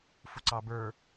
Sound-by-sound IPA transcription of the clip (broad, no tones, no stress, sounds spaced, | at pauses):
f u ǀ ɑ b ə˞